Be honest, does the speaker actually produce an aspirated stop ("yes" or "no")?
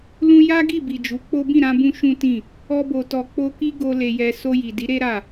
no